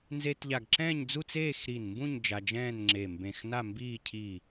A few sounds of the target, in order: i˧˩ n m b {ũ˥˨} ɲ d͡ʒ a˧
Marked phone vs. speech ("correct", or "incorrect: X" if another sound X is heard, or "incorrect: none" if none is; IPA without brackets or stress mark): correct